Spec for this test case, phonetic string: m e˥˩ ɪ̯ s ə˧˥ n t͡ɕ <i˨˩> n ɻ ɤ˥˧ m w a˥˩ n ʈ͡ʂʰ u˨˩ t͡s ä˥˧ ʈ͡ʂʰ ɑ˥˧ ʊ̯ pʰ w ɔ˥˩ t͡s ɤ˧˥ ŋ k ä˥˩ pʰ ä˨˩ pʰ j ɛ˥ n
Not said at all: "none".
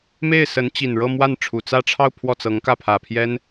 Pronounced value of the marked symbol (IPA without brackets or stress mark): i˨˩